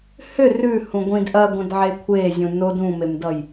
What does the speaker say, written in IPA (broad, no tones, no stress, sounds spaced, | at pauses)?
h ʏ r ʉ h ũ ɡʷ ĩ d ʔ ɐ ɡʷ ɐ̃ d ʕ e kʷʰ e zʲ ũ n o d ũ m e m d ʌ j